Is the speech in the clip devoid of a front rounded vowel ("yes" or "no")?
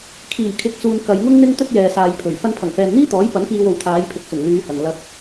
no